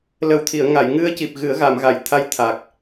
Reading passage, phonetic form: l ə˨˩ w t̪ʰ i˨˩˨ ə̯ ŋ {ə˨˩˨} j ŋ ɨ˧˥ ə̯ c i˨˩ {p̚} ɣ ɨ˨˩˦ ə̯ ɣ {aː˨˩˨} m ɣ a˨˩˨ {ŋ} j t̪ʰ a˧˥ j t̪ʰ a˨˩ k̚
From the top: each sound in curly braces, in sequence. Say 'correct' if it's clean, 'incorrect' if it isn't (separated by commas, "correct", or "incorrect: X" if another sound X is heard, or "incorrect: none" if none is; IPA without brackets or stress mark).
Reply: incorrect: a˨˩˨, correct, incorrect: a˨˩˨, incorrect: none